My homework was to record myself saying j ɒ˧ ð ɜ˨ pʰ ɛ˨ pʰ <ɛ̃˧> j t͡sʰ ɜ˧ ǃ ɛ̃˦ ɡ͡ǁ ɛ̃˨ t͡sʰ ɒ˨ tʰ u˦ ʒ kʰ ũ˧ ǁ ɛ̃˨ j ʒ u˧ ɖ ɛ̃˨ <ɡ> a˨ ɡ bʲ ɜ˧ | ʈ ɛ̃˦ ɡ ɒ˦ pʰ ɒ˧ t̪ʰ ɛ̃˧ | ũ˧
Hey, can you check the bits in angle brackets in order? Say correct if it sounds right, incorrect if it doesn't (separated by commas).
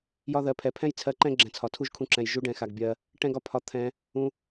incorrect, incorrect